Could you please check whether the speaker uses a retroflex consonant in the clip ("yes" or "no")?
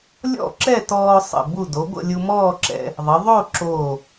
no